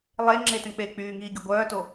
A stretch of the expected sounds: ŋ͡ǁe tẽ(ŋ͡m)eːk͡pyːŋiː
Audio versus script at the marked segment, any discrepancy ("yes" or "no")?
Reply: yes